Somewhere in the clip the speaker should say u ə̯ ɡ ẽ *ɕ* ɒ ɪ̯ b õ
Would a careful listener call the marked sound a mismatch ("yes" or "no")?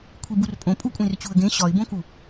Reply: no